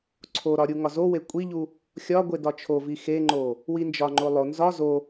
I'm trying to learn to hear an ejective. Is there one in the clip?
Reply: yes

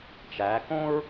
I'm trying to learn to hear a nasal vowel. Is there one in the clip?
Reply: yes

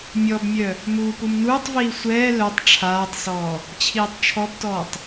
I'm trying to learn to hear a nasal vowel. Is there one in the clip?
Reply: no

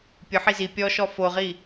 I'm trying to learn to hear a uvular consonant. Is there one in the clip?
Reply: yes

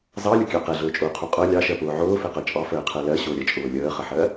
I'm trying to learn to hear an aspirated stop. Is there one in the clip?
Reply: yes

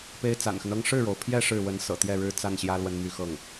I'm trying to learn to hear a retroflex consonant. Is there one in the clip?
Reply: yes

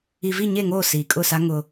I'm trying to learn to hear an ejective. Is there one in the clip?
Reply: yes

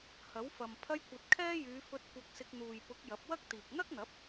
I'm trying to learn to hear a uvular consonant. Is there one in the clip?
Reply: no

